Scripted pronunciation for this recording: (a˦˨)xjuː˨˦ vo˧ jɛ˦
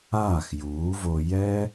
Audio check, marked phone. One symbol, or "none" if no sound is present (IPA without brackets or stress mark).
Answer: aː˦˨